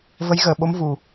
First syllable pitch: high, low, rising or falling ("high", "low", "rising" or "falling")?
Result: rising